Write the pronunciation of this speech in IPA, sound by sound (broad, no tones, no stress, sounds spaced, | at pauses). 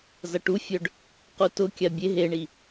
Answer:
z ɐ ʈ u fʲ œ ɖ | q u t ʊ kʲ a bʲ e ɦ e ɳ i